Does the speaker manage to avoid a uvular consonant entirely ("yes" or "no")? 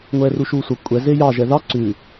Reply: yes